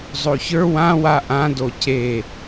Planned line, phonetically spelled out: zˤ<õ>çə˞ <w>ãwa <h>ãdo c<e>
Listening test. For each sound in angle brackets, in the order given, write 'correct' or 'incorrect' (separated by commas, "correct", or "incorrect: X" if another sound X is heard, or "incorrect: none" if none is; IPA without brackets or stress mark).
incorrect: o, correct, incorrect: ʔ, correct